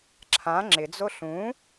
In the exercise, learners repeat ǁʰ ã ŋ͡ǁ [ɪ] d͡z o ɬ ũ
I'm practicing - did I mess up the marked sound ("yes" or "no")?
no